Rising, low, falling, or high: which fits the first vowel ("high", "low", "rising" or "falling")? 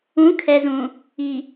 rising